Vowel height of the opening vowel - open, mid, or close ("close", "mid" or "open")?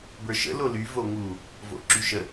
mid